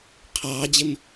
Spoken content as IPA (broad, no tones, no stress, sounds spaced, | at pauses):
qʰ ɑː d͡ʑ ɪ m